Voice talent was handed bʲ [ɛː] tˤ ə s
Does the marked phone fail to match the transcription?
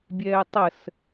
no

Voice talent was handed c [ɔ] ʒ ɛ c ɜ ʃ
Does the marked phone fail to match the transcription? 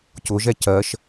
yes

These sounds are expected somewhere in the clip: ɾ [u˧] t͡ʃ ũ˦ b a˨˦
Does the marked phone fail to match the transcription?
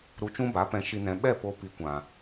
no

